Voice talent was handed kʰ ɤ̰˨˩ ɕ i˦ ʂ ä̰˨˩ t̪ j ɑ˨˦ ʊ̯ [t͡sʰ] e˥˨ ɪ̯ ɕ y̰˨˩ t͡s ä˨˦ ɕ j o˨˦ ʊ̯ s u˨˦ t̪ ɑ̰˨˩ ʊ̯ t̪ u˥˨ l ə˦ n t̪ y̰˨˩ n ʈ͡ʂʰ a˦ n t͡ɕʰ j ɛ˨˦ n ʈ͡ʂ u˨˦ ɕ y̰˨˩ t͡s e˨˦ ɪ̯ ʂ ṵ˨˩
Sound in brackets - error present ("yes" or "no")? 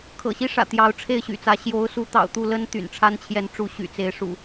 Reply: yes